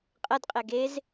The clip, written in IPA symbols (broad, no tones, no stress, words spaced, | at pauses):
qʼɐdqʼɛ ɡez